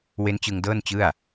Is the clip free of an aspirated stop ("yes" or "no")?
yes